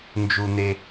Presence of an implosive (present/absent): absent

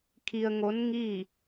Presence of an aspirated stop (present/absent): present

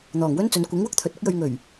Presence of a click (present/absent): absent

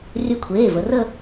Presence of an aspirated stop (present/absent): present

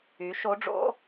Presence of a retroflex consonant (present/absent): present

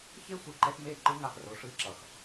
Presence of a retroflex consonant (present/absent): present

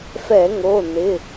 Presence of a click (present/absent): absent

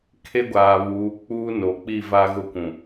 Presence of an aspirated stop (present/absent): present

